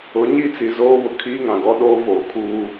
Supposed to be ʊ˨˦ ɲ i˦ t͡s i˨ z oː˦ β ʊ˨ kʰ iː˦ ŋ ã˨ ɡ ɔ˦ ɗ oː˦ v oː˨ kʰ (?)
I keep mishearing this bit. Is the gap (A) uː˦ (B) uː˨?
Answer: A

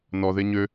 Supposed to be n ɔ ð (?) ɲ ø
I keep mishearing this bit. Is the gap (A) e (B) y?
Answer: A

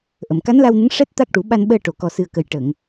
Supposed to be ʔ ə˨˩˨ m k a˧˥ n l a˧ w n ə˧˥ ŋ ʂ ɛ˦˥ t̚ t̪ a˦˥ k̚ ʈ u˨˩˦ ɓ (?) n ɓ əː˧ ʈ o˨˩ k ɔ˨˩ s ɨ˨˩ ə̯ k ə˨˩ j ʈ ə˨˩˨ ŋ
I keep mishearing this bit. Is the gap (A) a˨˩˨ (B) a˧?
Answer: B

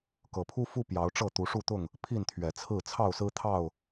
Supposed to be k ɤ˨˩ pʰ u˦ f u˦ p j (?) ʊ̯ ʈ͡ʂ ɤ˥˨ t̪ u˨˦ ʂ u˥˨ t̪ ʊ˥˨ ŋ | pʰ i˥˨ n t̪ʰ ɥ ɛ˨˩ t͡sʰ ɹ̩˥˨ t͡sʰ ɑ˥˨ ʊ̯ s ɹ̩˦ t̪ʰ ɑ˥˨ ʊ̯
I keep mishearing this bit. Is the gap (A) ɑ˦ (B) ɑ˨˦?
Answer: B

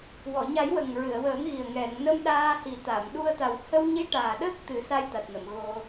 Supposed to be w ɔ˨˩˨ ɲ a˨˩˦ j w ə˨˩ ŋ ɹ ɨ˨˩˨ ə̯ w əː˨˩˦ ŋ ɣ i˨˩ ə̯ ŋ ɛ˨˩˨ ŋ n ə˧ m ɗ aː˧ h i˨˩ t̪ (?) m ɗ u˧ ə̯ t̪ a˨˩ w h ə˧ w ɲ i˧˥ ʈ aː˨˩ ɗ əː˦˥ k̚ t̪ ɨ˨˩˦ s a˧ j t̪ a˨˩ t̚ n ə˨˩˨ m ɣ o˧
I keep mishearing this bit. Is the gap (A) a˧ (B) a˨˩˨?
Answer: B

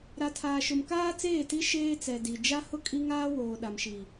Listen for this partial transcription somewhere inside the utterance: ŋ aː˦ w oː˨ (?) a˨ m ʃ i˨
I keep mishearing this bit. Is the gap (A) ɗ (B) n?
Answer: A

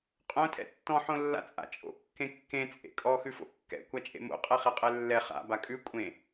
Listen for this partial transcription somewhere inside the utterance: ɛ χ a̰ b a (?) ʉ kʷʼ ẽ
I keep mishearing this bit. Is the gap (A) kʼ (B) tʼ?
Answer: A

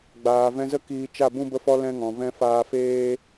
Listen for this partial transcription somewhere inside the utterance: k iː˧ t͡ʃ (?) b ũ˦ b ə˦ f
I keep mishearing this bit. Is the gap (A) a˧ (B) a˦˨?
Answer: B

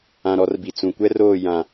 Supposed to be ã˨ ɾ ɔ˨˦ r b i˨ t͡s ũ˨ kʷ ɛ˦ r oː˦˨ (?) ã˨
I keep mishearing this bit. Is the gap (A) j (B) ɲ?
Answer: A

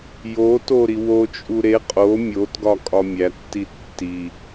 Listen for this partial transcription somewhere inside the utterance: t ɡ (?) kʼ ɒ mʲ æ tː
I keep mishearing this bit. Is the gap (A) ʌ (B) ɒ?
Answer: B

